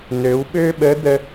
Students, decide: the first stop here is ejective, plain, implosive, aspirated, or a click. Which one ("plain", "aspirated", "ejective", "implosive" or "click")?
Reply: implosive